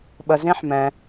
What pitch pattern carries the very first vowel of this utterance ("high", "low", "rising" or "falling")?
low